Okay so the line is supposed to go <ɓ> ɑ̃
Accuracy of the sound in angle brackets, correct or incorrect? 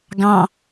incorrect